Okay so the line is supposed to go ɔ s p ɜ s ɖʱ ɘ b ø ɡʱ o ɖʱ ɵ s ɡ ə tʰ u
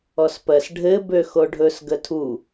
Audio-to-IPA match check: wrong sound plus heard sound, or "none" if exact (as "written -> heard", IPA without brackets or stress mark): ɡʱ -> x